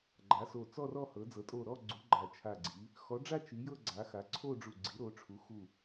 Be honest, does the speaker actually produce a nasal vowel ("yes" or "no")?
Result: no